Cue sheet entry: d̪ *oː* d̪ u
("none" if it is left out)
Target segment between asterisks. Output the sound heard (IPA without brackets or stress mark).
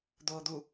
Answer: oː